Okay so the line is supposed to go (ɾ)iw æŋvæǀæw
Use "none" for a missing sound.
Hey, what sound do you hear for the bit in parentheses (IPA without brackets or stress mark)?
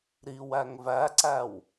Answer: ɾ